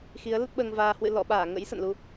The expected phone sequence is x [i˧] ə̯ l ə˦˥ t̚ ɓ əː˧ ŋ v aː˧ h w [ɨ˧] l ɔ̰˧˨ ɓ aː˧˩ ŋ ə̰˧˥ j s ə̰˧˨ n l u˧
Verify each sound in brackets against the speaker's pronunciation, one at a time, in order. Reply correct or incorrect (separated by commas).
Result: incorrect, incorrect